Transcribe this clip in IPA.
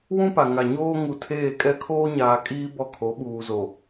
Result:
w ũ˦ p a˨ ŋ a˨ ɲ oː˦ ŋ u˨ tʰ eː˦˨ kʼ ɛ˦ kʰ oː˦ ɲ aː˨ kʼ iː˦ b ɔ˦ kʰ o˨˦ ɓ uː˨ z o˨

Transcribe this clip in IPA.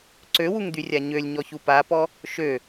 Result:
ǀ ø w u ŋ d̪ y rʲ a ɲ ø lʲ ɲ ɔ ç u p a p ɔ | ʃ ø

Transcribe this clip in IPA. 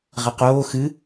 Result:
ʁ ɐ q oː x ɨ

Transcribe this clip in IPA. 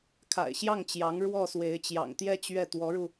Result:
kʰ a̰˨˩ ɪ̯ ɕ j ɑ˥˩ ŋ t͡ɕ j ɑ˧˥ ŋ ɻ w ɔ˥˩ s w e˧˥ ɪ̯ t͡ɕ j ɑ̰˨˩ ŋ t̪ j ɛ˥˧ t͡ɕ ɥ ɛ˥˩ t̪ w ɔ˧˥ ɻ u˧

